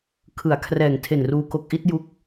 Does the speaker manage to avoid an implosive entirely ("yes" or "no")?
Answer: yes